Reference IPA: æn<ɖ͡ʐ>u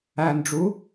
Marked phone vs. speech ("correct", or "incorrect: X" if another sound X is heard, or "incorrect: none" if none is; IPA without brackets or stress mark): correct